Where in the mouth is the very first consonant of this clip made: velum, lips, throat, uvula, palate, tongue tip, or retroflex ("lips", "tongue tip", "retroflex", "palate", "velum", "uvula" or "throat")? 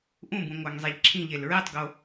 throat